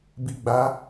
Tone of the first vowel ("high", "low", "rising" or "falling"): low